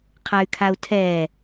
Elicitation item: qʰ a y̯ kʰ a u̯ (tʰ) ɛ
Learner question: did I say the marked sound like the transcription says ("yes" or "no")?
yes